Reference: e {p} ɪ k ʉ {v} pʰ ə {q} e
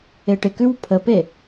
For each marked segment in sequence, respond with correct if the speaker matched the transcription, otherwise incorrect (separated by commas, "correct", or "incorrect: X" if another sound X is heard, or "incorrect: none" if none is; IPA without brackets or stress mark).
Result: incorrect: ʈ, incorrect: w, incorrect: p